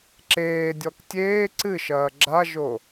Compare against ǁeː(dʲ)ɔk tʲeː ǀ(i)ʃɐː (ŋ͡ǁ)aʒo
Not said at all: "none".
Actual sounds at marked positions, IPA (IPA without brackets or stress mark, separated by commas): dʲ, ɨ, ɡ͡ǁ